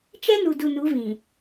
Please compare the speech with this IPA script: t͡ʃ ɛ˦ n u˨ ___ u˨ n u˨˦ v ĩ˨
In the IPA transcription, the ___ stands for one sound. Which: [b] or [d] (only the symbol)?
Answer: d